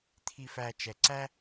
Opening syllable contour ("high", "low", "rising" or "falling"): low